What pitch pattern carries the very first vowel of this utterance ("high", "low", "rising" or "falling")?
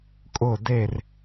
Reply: falling